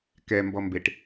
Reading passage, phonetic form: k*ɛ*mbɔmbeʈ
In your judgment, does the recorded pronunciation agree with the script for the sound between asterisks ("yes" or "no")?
yes